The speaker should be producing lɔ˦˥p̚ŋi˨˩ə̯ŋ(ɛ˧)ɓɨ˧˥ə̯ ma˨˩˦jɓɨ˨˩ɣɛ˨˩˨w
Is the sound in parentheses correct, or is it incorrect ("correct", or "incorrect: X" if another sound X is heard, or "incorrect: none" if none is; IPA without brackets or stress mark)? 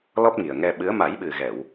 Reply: correct